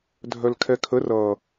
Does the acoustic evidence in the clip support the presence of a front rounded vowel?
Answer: yes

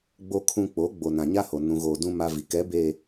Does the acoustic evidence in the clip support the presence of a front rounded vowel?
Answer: no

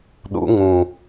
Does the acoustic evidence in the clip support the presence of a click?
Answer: no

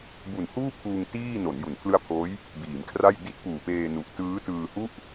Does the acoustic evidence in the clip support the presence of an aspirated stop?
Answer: yes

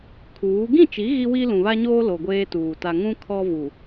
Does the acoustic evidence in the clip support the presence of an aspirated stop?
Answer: yes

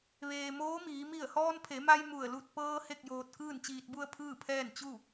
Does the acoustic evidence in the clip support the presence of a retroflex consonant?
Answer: no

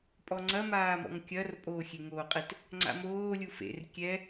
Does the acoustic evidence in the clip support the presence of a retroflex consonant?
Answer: no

